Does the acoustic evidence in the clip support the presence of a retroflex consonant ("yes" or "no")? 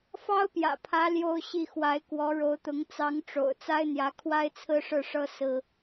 yes